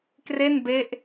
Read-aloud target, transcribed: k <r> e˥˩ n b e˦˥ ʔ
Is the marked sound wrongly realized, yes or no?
no